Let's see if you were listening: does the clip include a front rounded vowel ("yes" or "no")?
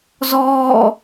no